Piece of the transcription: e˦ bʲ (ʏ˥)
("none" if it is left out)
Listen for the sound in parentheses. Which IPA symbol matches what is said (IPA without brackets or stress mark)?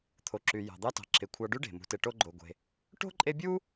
u˥